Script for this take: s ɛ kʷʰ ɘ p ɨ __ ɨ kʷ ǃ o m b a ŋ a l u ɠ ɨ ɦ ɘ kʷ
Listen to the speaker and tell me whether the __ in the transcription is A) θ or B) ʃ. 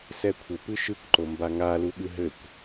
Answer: B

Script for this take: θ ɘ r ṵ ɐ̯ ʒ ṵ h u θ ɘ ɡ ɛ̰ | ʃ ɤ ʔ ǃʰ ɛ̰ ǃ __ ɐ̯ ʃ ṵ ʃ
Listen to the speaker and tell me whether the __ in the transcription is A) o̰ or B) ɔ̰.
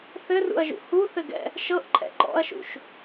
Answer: B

